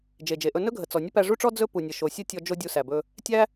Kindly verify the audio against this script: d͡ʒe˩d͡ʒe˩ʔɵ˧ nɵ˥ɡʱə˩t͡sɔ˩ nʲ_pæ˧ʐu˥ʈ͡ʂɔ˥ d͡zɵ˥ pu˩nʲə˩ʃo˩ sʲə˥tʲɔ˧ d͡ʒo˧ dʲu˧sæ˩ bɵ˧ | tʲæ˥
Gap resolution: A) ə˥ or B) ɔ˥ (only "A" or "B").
A